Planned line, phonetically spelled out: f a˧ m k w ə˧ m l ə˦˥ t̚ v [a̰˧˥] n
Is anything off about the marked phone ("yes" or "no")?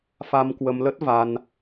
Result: yes